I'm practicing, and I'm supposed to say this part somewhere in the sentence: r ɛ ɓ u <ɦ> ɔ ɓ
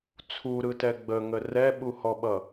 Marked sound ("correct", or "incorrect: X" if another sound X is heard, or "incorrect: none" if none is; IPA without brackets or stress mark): incorrect: h